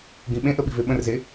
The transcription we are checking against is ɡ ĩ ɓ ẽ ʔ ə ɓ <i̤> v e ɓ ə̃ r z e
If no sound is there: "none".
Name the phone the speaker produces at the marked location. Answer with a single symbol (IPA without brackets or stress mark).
i̤